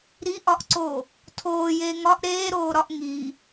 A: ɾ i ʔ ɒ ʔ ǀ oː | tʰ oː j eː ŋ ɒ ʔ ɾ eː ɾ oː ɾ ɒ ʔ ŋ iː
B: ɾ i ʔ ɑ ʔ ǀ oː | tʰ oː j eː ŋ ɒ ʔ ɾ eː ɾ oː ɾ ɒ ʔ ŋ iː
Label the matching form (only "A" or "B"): A